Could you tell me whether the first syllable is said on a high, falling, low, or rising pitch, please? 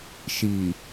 low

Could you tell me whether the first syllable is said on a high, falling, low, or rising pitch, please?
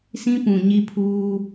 high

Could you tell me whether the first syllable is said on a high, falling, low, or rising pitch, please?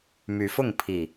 rising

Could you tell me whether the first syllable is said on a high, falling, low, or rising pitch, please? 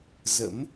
rising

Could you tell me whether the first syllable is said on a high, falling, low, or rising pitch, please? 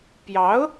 rising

